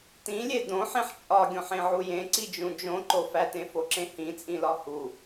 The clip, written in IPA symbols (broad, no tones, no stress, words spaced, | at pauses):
tĩlʲe dõħẽħ t͡ʃʼɒɡʲõħẽʕu jẽǀid͡ʒũ d͡ʒõǃo fætẽfoǁẽ hĩt͡sʼĩlɒ hu